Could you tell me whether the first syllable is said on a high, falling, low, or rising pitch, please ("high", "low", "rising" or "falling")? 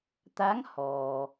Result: rising